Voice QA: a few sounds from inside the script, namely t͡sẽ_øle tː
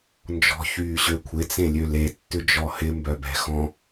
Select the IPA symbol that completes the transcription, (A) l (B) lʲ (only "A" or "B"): B